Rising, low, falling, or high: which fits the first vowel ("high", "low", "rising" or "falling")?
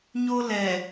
high